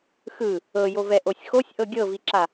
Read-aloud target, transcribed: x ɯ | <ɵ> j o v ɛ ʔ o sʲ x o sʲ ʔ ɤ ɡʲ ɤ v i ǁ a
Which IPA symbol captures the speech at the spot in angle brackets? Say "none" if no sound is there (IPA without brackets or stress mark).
ɤ